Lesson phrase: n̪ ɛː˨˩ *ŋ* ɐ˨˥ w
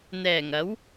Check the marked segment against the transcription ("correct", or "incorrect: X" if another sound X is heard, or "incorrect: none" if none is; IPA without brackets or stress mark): correct